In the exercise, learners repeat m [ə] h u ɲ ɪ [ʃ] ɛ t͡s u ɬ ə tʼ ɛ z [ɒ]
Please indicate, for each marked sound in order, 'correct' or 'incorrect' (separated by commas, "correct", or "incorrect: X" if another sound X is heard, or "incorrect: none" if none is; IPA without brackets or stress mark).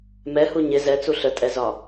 incorrect: ɛ, incorrect: z, correct